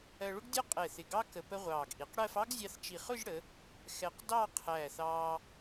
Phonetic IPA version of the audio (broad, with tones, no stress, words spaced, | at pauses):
ɜ˧ɭʊ˥ɡdʲɒ˥ qʼɛ˧˩θɪ˧˩ɡɑ˥ kə˧pə˥ʁʷɑː˧˩ɡ ʔi˩˧qɽɜ˥˧f ɑ˥ɡ zʲɑ˧θt͡ʃi˧˩χʊ˥˧ʒɽə˩˧ | xɛ˧q dɑ˥˧qʰæː˧˩θɑː˧